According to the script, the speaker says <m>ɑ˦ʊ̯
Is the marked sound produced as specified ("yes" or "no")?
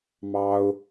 yes